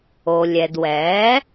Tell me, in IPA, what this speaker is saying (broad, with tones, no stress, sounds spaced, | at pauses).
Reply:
o˩ lʲ ɛ˩ d w ɛː˩˥